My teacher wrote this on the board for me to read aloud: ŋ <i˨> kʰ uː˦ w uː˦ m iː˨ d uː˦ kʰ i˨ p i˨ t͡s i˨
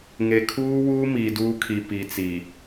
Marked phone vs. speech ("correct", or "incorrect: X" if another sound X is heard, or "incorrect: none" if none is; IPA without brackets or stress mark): incorrect: e˨